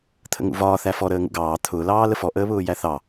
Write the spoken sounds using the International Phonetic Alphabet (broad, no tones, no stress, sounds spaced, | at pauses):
t̪ʰ ə̰ ŋ ṵ v ɒː θ æ f ɔ ɾ əː ŋ ṵ ɡ ɑː t̪ʰ ʊː l ɑː l ə f ɔ ʔ əː β ʊː j æ θ ɑ